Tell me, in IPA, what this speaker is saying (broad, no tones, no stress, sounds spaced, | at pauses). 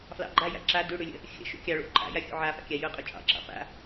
f l ɑ̰ ɡ͡ǃ a j a̰ ǁ a d ʉ ɽ ʉ lʲ ə̰ | xʲ ə̰ ʃ ṵ kʲ ɑ ɭ ṵ ǃʼ a̰ j a xʲ ṵ ʕ a f a̰ kʲ a j ʊ qʼ u t͡ʃʼ ɑ̰ ǁ ɑ̰ p a̰